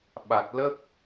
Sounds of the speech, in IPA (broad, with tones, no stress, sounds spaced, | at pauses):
ɓ a˨˩ t̚ l ə˦˥ k̚